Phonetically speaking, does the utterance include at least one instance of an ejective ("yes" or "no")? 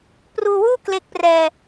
no